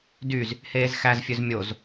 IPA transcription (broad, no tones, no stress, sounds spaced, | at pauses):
d y z | h eː z x æ z fʲ ø z mʲ o z